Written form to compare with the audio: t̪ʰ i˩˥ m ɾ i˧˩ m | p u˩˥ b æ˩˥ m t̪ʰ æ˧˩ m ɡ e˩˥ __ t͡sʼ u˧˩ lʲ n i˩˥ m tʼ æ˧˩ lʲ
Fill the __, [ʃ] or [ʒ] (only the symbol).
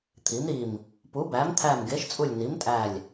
ʃ